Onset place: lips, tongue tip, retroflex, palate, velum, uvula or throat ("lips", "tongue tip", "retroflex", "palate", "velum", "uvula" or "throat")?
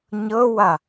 palate